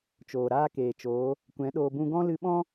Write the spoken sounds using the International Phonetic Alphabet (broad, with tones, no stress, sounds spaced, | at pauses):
t͡ʃ oː˨ ɾ aː˦ k eː˨ t͡ʃ oː˨˦ | kʷ ɛ̃˨˦ ɗ oː˧ b ũ˦ ɡ ɔ̃˦ l ɨ˧ ɓ ɔ̃˦